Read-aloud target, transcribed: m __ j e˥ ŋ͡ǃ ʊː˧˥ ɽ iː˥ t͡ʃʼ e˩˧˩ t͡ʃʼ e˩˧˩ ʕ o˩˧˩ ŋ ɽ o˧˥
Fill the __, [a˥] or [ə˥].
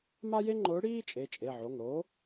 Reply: a˥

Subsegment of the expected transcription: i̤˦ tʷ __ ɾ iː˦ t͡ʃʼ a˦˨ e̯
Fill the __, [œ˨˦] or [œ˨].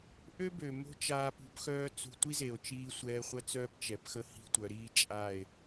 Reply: œ˨˦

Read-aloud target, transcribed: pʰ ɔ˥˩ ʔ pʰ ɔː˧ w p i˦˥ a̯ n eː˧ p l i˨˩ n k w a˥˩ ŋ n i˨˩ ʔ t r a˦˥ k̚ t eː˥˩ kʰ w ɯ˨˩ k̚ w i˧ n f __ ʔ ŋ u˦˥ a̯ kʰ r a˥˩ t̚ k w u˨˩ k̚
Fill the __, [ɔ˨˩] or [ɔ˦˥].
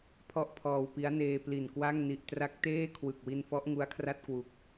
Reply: ɔ˦˥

